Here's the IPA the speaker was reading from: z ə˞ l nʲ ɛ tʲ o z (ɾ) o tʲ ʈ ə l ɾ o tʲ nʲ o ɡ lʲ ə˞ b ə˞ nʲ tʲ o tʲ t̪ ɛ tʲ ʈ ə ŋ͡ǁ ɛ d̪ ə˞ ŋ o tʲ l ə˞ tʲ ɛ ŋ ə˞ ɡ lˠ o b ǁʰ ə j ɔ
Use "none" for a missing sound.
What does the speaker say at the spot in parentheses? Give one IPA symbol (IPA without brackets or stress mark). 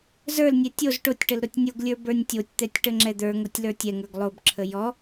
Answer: ʈ